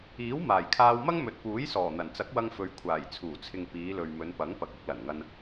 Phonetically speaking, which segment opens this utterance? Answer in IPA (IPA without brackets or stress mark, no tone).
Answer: iː